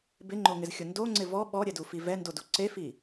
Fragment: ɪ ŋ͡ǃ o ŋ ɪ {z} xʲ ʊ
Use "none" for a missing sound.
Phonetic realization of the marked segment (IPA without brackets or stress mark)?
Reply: z